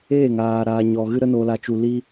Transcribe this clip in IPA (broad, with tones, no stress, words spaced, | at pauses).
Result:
eː˦˨ŋaː˨ ɾaː˨ ɲɔ˨ɣɨ˧ ɾə˧noː˨ la˨t͡ʃu˨ li˧